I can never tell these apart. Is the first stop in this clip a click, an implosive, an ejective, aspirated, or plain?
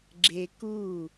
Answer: click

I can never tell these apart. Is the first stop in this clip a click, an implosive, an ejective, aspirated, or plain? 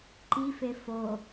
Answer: click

